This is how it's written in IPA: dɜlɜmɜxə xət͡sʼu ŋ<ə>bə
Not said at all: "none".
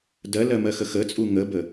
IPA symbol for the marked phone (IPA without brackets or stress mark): ə